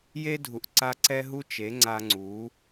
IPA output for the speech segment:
j e˦ dʱ u˨ ʔ ǀ a˧ ǀ ɛ˦ ɦ u˦ t͡ʃ e˨˦ ŋ͡ǀ a˧ ŋ͡ǀ u˨˦

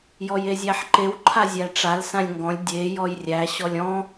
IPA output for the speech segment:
j ɔ j e zʲ æ ħ ǃ e w ǃʰ a zʲ æ ʈ͡ʂ a l s ã lʲ ŋ ɡ ɔ̃ lʲ dʲ e j ɔ j rʲ æ ɕ ɔ lʲ ɔ̃

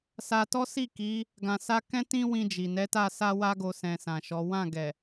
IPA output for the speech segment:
s a˧ t ɔ˦ s i˦˨ k i˨˦ | ɡ ã˧ s a˦ k ɛ̃˦ t ĩ˦ w ĩ˧ d͡ʒ i˨ n ɛ˨˦ t a˦˨ s a˧ w a˧ ɡ o˨ s ɛ̃˧ s ã˨ ʃ ɔ˨˦ w ã˦˨ ɡ ɛ˨

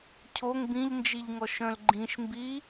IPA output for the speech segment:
cʰ o ŋ b ĩ ʎ n d͡ʒ i ʎ ŋ ɔ ʃ œ̃ l ɡ͡ǃ ĩ ʃ m b i

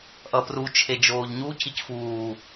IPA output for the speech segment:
ʔ ʌ p r u t͡ʃʰ e d͡ʒ oː ʎ ɲ u c i c f uː

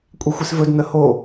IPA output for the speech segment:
kʷʼ i xʷ i s v ɵ d n ə h o

